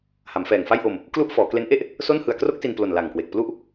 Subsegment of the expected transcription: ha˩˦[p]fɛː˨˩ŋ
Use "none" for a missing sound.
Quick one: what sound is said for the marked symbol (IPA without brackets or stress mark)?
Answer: m